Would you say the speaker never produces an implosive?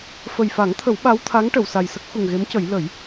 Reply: no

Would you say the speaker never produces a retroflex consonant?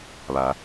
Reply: yes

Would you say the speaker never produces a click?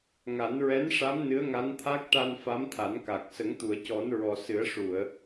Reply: yes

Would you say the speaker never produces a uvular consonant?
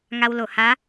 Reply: yes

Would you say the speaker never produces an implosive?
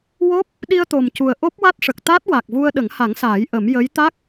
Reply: no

